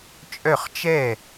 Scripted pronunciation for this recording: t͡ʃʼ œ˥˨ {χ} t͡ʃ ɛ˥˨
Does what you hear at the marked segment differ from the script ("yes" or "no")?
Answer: no